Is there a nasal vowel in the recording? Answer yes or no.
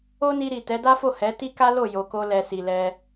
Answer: no